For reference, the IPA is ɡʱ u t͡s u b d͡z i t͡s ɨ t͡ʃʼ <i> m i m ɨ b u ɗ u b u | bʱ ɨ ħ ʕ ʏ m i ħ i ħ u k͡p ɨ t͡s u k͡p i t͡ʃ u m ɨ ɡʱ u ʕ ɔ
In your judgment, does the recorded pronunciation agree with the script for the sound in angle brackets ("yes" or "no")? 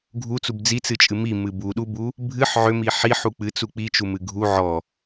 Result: no